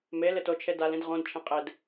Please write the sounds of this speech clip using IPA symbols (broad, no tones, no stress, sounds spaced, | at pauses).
m e l ɪ t o t͡ʃʰ e d a l ĩ d ʁ õ d t͡ʃʰ ẽ qʼ e d